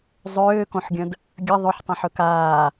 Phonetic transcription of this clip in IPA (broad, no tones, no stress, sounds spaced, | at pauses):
zˤ øː k õ ħ ɡʲ ə̃ d | ɡʲ ə ðˤ ɵ ħ tˤ ə̃ ħ ɵ k aː